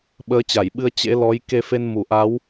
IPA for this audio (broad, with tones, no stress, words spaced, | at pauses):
ɓəː˨˦t͡ɕa˧˩jɓɨ˧ə̯ t͡ɕḛ˧˥lɔ˨˦j ke˧fe˧n mu˧˩ʔa˨˦w